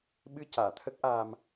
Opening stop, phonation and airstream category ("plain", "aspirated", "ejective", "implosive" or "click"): implosive